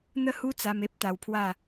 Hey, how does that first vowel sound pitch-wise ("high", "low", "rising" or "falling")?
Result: falling